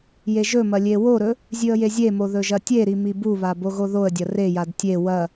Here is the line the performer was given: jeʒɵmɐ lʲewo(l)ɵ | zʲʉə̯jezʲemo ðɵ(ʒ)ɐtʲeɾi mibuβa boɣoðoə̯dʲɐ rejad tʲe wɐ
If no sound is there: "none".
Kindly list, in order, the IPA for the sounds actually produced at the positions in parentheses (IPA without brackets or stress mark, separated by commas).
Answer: ɾ, ʒ